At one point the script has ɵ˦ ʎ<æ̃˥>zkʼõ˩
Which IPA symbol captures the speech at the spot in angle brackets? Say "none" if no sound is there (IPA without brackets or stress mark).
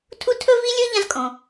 ã˥